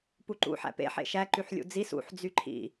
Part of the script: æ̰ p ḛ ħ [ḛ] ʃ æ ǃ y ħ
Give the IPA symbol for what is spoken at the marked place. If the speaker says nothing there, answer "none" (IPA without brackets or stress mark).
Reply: ḛ